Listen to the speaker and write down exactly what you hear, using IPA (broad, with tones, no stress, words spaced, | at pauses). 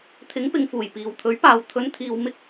t̪ʰɪ˨˥ŋpɪ˨ŋfuː˨˩j piː˨wt̪ʰɵ˨˥ɥpaː˨w t̪ʰɵ˨˧nt̪ʰiː˨w mɪ˥k̚